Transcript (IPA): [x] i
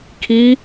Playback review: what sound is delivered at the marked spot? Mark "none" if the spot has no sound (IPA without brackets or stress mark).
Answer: kʰ